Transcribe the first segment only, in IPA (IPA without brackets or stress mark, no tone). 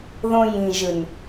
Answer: ð